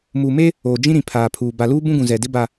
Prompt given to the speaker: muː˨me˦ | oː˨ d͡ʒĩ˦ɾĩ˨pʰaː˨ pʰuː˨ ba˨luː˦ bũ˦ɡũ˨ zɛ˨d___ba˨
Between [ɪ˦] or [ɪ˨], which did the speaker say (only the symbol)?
ɪ˦